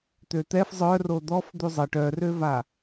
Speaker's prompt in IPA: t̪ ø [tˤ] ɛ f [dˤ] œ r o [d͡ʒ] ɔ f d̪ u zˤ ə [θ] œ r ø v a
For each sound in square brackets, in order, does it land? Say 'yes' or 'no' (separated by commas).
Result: no, no, no, no